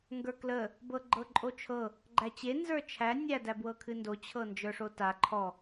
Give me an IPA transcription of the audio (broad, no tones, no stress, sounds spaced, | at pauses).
ŋ ɡ ə˞ k l ə | b ɤ ɡ͡ǃ ɤ ǃʼ o t͡ʃʰ ɤ | ɡ͡ǃ æ t͡ɕ e n z ə˞ t͡ʃʰ æ nʲ æ d æ b w ɤ kʰ ɨ n d o t͡ɕʰ ɤ n d͡ʒ ə˞ ʂ o t a ǃʰ ɔ